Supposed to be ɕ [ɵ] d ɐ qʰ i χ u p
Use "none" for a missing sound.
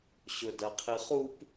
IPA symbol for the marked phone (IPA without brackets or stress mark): ɵ